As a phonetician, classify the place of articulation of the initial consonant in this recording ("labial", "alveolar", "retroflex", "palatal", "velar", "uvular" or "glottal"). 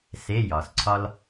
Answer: alveolar